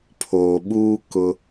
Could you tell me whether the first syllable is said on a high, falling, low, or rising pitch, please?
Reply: low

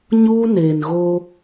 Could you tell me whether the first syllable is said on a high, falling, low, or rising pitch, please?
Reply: high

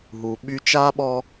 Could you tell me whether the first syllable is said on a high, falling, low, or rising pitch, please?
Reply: low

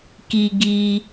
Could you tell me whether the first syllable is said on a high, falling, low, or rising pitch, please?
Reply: high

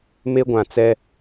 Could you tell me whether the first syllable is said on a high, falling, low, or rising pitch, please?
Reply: high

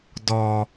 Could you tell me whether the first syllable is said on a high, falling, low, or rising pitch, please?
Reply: low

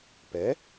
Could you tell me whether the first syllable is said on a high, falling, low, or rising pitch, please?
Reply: rising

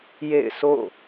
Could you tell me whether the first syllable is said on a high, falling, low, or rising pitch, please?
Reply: falling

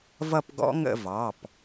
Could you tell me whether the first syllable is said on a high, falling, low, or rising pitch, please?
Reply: falling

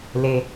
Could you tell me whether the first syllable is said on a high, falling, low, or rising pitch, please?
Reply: low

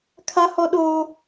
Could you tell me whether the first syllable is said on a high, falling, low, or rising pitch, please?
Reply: high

